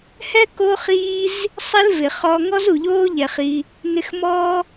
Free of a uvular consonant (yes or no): no